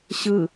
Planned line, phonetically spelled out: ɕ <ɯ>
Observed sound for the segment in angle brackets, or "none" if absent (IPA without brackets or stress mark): ɯ